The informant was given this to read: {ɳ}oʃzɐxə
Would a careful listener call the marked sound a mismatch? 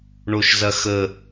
no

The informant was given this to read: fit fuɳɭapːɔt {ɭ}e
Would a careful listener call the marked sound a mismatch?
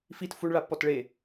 no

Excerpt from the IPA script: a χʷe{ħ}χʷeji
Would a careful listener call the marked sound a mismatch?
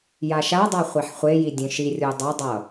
no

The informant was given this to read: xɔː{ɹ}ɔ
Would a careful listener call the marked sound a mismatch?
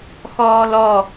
yes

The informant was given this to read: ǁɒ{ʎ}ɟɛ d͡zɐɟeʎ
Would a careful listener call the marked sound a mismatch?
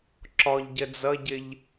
no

